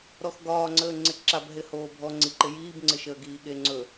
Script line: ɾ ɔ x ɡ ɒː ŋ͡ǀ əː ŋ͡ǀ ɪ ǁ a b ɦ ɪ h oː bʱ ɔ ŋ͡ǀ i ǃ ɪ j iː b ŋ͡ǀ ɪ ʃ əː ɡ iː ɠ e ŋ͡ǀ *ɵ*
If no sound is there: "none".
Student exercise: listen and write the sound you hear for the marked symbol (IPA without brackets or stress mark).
ɵ